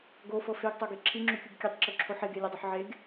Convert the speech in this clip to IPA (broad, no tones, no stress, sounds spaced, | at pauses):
ɡ o f ɤ f e ɡ tˤ o ɡ e ǁʰ i ŋ͡ǁ u kʲ u ɡ kʲ e tˤ ǁ o ǁʰ o ħ e ɡ e lʲ o dˤ o ħ ʕ e ɡ